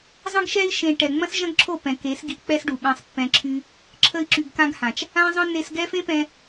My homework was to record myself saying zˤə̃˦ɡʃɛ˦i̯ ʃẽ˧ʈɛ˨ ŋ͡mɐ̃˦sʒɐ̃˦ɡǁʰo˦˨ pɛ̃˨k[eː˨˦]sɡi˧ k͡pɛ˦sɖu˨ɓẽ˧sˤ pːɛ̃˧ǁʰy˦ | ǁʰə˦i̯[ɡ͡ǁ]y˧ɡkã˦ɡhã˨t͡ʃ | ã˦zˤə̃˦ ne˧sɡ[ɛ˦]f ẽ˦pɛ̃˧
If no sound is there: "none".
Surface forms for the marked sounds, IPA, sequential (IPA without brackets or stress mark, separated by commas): e˨˦, ǁ, ɛ˦